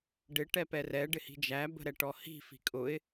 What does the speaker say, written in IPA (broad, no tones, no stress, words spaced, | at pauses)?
ɖɪ ʈɛpɛrɛ ɖɪhi̤d͡ʒæ bə̤ɾɛʈɔhi̤ fi̤kʼʊɪ̯